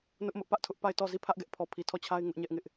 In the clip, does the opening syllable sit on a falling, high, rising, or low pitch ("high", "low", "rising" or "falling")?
high